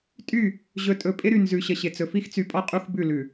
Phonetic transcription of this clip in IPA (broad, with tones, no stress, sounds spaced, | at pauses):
tʼ y˦˨ | ʑ ɵ˨ tʼ ɵ˨ pʼ ɪ˦ ɾ y˨ n z ʉ˨ ɕ ə˨ ɕ ɪ˨ t͡s ɵ˨ f i˦ x t͡s y˨ pʼ ɔ˦ qʼ u˦ x b ʉ˦˨ l ʉ˨